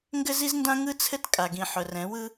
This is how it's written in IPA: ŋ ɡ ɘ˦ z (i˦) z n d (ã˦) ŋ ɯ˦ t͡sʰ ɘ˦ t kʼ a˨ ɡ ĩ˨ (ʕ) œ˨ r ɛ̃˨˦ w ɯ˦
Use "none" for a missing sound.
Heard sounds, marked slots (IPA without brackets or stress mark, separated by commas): i˦, ã˦, ħ